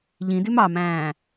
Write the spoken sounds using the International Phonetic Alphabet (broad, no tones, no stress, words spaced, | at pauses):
ʎĩdʉm ɑmæ̃ː